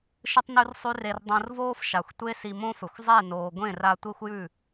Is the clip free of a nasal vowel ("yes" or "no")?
no